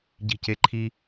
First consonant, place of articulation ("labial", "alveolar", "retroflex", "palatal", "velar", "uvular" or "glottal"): palatal